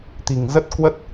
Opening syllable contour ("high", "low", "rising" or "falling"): low